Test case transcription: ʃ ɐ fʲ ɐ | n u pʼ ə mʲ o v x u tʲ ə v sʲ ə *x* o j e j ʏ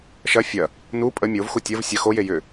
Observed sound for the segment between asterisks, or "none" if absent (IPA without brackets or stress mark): x